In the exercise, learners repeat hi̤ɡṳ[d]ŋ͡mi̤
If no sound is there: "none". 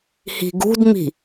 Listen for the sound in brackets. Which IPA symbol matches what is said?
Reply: d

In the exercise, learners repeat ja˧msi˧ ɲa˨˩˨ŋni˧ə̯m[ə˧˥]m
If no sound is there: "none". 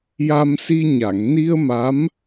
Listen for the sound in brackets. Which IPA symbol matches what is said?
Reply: a˧˥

